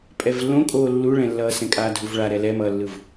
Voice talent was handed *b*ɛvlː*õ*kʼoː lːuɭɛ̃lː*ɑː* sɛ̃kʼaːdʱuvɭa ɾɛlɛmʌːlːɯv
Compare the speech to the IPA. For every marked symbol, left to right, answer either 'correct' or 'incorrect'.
incorrect: pʼ, correct, incorrect: ʌː

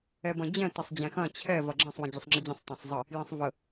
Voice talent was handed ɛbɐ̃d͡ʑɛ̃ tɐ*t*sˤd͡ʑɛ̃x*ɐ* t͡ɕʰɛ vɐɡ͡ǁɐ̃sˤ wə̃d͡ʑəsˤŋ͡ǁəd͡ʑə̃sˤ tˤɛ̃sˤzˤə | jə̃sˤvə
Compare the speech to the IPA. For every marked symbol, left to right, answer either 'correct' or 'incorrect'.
incorrect: none, incorrect: ɐ̃

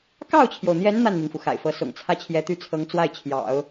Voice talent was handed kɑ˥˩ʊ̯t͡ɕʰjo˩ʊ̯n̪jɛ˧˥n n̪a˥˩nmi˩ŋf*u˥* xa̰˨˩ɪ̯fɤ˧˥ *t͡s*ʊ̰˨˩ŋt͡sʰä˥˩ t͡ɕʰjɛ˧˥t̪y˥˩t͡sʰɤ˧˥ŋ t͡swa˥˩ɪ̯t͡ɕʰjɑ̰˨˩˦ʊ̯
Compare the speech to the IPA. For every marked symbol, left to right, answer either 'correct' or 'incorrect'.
incorrect: u˩, incorrect: s

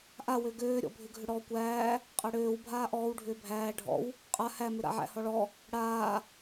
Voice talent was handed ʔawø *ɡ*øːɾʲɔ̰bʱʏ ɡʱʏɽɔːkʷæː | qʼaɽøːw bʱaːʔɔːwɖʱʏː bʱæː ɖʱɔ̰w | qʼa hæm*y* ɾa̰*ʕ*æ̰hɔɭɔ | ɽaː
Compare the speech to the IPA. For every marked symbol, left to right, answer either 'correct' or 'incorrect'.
correct, incorrect: ʏ, correct

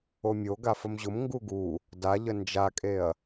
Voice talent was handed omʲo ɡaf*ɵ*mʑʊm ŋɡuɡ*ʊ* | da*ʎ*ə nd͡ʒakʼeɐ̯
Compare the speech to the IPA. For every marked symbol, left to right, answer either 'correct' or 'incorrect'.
incorrect: ə, incorrect: u, correct

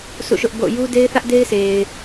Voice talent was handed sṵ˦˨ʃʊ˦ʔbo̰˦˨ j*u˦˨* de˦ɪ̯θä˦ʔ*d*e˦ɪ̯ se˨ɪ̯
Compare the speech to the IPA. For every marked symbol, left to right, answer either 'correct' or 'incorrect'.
incorrect: u˦, correct

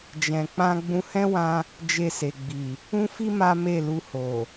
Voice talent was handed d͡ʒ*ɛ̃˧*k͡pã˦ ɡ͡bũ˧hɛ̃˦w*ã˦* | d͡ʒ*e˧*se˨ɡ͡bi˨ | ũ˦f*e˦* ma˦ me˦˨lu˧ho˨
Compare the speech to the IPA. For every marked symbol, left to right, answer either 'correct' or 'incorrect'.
correct, incorrect: ã˧, correct, incorrect: i˦

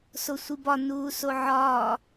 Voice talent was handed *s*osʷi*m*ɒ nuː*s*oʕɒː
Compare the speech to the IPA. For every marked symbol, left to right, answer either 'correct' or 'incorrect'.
correct, incorrect: b, correct

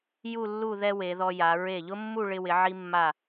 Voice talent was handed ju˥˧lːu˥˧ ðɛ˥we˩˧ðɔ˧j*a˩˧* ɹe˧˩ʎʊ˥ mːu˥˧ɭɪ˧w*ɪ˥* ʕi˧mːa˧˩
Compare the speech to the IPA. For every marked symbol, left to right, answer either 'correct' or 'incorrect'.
correct, incorrect: ɪ˩˧

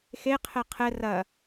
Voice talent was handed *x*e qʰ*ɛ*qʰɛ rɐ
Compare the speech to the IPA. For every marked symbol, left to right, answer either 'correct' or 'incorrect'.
correct, correct

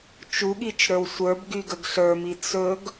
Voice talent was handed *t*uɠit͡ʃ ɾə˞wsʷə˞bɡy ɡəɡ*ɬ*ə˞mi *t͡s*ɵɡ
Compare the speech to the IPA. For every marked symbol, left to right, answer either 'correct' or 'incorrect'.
incorrect: t͡ʃ, correct, correct

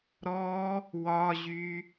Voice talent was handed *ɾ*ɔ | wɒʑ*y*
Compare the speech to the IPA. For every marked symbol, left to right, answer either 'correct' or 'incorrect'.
correct, correct

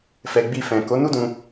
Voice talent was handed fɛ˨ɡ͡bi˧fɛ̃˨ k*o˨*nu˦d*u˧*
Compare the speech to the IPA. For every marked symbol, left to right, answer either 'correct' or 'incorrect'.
incorrect: o˨˦, incorrect: ũ˧

